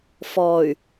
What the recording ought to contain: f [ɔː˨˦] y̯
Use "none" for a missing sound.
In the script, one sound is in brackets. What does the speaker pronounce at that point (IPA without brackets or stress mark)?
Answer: ɔː˨